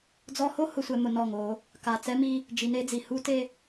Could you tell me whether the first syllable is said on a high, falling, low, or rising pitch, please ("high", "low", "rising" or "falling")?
high